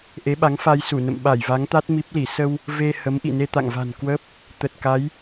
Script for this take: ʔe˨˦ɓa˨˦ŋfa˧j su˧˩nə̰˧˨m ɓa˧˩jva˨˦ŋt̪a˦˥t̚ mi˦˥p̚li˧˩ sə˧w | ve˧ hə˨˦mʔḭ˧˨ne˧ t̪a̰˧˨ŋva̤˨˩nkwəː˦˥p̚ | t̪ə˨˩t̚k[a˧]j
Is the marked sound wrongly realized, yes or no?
yes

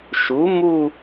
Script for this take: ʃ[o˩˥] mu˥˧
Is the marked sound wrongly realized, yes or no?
yes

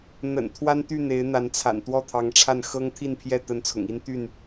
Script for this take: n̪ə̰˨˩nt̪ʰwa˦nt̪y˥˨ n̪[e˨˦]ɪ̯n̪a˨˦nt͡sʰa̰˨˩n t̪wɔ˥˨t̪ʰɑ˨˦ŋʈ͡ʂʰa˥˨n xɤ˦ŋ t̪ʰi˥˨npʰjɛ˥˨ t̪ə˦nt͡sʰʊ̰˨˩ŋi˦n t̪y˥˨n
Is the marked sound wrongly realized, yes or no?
no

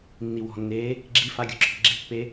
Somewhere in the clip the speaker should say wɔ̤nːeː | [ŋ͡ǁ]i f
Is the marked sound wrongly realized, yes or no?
yes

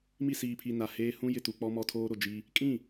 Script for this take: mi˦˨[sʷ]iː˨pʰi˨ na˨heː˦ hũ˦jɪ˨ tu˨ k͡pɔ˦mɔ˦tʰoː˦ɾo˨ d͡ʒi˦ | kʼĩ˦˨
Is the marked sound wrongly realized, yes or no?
yes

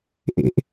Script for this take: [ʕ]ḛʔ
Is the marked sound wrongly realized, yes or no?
yes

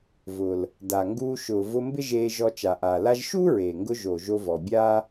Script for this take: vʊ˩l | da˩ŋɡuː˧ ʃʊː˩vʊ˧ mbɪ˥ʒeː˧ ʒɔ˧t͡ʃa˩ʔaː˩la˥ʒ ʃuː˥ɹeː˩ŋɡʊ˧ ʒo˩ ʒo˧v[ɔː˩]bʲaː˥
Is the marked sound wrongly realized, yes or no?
yes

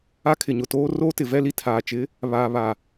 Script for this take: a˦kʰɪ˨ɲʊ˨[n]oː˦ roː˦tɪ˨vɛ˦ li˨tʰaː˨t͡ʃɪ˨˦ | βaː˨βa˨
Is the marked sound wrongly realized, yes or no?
yes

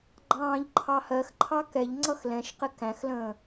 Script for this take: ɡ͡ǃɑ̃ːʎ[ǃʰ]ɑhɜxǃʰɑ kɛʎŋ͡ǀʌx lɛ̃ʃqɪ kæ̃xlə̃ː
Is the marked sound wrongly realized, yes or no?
no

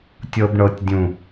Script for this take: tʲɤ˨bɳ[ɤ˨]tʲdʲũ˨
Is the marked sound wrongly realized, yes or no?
no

